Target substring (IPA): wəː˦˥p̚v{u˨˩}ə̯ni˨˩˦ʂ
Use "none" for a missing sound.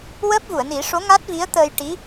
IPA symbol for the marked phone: u˨˩˨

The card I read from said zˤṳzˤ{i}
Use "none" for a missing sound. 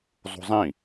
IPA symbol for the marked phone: ĩ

